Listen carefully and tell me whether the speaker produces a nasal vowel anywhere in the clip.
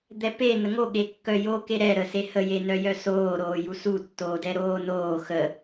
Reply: no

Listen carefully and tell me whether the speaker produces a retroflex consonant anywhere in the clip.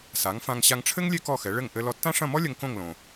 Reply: yes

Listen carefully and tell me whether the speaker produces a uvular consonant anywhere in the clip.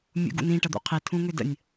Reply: yes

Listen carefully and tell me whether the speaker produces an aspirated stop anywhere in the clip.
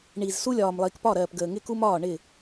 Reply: no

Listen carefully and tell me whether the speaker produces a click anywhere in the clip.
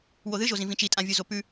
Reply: no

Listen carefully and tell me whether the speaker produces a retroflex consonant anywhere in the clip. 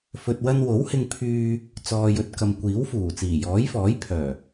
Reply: no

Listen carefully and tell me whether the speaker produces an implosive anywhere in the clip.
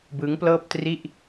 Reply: no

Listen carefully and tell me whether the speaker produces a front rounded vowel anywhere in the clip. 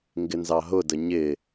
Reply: no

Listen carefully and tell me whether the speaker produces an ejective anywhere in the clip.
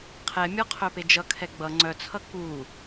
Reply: no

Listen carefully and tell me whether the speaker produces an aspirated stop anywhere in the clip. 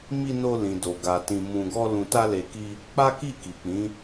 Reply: no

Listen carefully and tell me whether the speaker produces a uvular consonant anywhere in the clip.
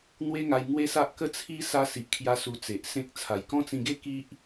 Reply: no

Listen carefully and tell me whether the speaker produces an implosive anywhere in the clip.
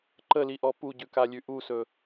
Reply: no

